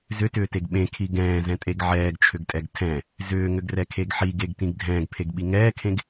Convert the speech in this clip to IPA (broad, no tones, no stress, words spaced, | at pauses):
zʏtʏːteɡ ɓẽkʰi ɡɛ̃ːzɛ̃tʼeɡ ʕɛːɡt͡ʃʰʏɡtʼɛɡ tʰɛ̃ | zʏːŋʏɡrɛkʰeɡ ħiɡeɡtĩɡ dʱɛ̃ːɡpʰeɡɓi ŋɛːkʰẽɡ